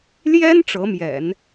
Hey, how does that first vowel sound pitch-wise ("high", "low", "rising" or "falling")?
high